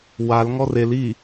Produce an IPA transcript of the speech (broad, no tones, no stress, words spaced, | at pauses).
wal ŋɔrel i